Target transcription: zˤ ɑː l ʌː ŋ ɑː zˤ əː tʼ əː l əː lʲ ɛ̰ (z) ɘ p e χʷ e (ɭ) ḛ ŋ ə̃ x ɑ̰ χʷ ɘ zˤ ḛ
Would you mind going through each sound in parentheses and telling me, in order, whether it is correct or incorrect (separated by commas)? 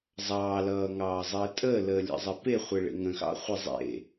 incorrect, correct